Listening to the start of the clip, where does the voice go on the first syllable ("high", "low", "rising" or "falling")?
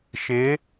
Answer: rising